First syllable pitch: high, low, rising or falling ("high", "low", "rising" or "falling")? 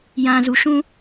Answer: low